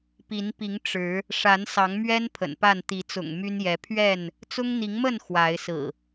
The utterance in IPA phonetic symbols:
pi˨˦npi˨˦ŋ ʈ͡ʂɻ̩˨˦ | ʂa˨˦nsɑ˨˦ŋmɥɛ˦n pʰə̰˨˩npa˥˨n t̪i˨˦t͡sʊ̰˨˩ŋ my˦njɛ˨˦ pʰɥɛ˥˨n | t͡sʊ˦ŋn̪i˨˦ŋmə˥˨n xwa˨˦ɪ̯sɹ̩˨˩

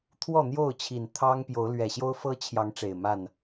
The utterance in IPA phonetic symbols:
t̪ʰwɔ˥˨n̪jo˥˨ʊ̯t͡ɕʰi˨˩n t̪ʰɑ˦ŋpjo˨˦ʊ̯lɥɛ˨˩ ɕjo˦ʊ̯fɤ˦t͡ɕʰjɑ˨˦ŋ ʈ͡ʂe˨˩ɪ̯ma˥˨n

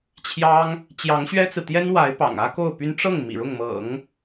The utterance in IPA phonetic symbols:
t͡ɕʰjɑ˥ŋ | t͡ɕjɑ˧˥ŋɕɥɛ˥t͡sɹ̩˨ t̪jɛ˥nwa˧˥ɪ̯ pɑ̰˨˩ŋä˥ko˥˩ʊ̯py˥n ʈ͡ʂɤ˥˩ŋ mḭ˨˩ɻʊ˥˩ŋmɤ̰˨˩˦ŋ

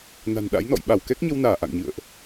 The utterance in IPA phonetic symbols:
na̤˨˩nɗa̰˧˥jnɔ̰˧˨j ɓa˧˩wkɛ˦˥k̚ɲə˧wnaː˧˩ ʔa̰˧˨ŋɲɨ̰˧˨ə̯ʔ

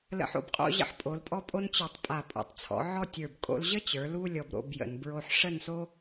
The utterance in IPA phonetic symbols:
lə̰˧ħo̰˧bqʼo̰˥˧ ʑə̰˥ħpʼo˩˧lpʼɔ˥pʼo˥n t͡ɕə˞˧˩tˤpʼa˧˩ pʼo̰˩˧tˤt͡sʰɔ̰˩˧ ʕɔ˥˧tʲə˞˧˩b kʼo̰˧lʑə˥t͡ɕə˞˩˧ lu˥ lʲɔ˧bɾo̰˥˧bjə̰˩˧n bɹo˧ħʂə˥˧nso˥

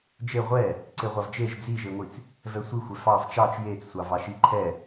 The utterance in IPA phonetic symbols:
d͡ʒe ʁʷɛ | ǀeʁʷɑvd͡ʒeʒ d͡ziʒeŋʷit͡s | vɛsʷixʷɛ fɑv t͡ʃɑt͡ʃ jet͡ssʷɑvɑ ʃiǃʰɛ

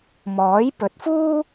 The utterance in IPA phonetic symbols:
mɔː˨˥j pɵ˨˥t̚fuː˥

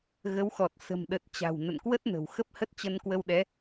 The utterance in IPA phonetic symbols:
ɣə˨˦wxɔ˨˩t̚ sə̤˨˩mɗə˨˩t̚ t͡ɕa̤˨˩w nə̰˧˨nkwə˦˥t̚nə̤˨˩w xə˦˥p̚hə˦˥t̚ t͡ɕə˧nkwə˧wɗɛ˨˦

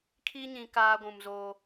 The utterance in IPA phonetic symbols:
kʰi˦ɲĩ˨ kaː˦ɡʷũ˨mzoː˦

